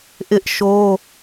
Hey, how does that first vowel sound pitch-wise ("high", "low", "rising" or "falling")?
high